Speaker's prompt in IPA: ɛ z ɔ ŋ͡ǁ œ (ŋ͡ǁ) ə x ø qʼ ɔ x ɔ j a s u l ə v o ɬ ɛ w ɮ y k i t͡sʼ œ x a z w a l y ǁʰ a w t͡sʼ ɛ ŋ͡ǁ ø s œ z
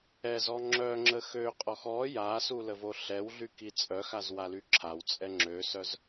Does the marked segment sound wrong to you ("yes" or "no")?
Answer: no